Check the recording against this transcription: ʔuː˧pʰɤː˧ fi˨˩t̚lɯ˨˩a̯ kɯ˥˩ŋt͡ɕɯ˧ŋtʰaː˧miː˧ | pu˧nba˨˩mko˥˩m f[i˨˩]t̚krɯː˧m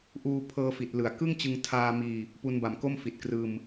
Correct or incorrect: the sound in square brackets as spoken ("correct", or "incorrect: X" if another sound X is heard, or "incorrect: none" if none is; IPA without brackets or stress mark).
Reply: correct